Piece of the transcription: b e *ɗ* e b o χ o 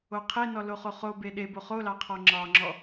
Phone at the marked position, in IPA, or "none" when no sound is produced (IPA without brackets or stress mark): ɗ